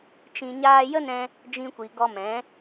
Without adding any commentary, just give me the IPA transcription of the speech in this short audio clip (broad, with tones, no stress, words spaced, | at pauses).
t͡ʃĩ˧ɲaː˦ jə˦nɛ̃˧ | d͡ʒĩ˧kʷi˨ ɡɔ˧mɛ̃˨˦